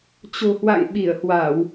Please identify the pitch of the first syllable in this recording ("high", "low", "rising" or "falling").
low